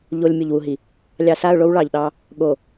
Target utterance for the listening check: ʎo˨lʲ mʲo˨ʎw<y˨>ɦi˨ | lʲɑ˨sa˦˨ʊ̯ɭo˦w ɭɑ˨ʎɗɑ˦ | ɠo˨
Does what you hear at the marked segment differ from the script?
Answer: yes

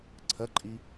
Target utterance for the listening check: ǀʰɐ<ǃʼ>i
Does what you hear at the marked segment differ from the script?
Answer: no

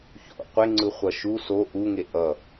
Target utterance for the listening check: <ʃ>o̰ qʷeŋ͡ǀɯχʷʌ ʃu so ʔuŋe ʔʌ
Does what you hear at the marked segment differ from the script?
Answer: yes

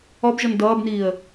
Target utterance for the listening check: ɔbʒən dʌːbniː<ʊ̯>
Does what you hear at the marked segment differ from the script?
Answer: yes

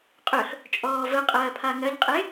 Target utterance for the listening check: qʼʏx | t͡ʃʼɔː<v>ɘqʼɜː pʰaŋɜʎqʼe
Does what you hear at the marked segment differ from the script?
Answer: no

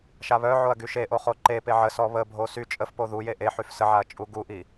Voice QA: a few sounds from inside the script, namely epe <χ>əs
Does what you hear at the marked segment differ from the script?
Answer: yes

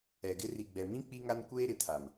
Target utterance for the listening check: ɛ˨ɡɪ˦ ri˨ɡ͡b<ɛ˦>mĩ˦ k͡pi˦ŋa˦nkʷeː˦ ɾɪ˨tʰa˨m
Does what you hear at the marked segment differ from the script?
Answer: yes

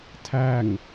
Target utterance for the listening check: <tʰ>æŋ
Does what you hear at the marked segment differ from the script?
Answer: no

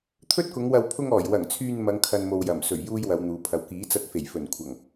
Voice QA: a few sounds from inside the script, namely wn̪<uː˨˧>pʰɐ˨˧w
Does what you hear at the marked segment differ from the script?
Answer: no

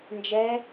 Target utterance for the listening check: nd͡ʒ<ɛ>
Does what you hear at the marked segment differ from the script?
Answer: no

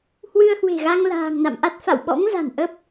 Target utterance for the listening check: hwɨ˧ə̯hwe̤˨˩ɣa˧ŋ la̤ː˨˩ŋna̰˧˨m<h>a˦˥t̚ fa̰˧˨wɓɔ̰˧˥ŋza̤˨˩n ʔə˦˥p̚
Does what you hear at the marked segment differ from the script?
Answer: yes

